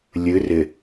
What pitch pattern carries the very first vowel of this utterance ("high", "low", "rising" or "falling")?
rising